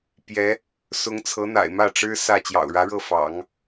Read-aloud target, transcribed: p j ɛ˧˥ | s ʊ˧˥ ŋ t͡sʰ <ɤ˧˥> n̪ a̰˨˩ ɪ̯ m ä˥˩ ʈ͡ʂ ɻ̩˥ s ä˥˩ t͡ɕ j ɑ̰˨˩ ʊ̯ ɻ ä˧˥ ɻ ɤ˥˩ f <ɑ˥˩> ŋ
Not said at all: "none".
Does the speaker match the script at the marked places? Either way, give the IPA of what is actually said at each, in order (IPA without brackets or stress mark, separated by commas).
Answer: ɤ˧˥, ɑ̰˨˩˦